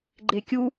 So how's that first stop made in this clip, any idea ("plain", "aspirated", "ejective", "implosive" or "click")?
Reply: click